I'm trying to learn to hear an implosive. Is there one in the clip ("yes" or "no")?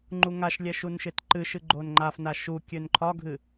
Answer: no